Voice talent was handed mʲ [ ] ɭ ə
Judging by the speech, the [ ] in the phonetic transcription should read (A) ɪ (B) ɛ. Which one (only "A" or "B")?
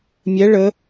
B